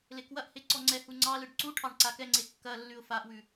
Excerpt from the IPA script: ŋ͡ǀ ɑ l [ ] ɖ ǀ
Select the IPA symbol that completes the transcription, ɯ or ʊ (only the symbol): ɯ